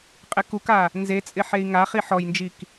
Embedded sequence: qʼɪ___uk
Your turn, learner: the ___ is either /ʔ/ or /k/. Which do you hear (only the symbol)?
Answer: k